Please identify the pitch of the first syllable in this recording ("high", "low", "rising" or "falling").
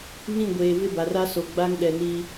falling